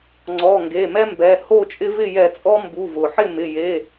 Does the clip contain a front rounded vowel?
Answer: no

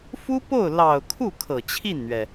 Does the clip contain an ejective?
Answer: no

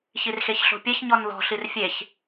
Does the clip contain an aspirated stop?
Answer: no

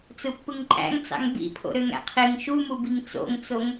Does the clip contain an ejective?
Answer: yes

